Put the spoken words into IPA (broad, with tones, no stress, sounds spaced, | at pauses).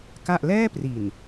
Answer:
k a˥˩ ʔ l ɛː˥˩ p r i˨˩ n